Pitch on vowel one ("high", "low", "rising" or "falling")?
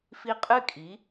rising